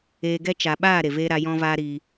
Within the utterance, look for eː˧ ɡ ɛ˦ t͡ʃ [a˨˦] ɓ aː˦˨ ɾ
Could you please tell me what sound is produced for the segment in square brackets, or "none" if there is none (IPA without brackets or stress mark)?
a˨